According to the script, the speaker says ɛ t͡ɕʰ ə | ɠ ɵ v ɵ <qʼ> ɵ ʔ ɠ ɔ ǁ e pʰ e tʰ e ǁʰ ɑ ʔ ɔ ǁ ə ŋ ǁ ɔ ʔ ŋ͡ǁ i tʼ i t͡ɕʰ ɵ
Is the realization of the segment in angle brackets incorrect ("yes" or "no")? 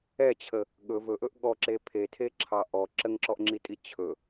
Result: yes